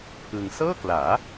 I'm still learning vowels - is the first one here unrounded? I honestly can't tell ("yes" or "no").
yes